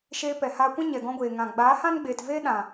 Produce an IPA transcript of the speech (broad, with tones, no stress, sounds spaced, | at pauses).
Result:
ʃ eː˧ p ɛ˨ h aː˧ kʷ ã˦ ɲ ɛ˨ ɡ ɔ̃˧ ɡʷ eː˨ ŋ ã˨ ɡ͡b aː˨˦ h ã˦ n ɡ͡b eː˨ t v eː˦ ɗ ã˨